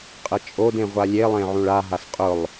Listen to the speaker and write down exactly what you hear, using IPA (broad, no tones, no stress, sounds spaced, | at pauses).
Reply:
qʼ ə t͡ʃʼ o d ẽ ʁʷ a lʲ e lˠ ẽ ʕ ũ ɭ a ɦ a s qʼ ʊ lˠ